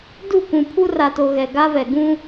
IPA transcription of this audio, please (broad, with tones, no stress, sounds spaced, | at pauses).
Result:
d u˦˨ kʷ ũ˨ pʰ u˦ r a˨ t o˨ ɣ ɛ˨ ɡ a˦ v ɛ˨ ɡ ũ˦